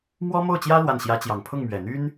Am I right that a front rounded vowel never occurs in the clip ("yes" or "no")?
no